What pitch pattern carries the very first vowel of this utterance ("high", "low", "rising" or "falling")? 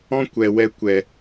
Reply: high